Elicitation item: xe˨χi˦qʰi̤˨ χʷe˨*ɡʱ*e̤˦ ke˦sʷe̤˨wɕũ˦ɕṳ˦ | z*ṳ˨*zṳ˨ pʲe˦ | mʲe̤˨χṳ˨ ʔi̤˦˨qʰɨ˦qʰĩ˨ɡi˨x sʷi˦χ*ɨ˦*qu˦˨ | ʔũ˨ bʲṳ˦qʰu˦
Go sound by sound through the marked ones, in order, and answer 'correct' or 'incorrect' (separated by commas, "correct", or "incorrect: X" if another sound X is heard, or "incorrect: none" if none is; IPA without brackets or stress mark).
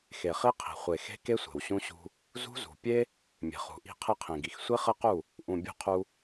incorrect: x, incorrect: ṳ˦, correct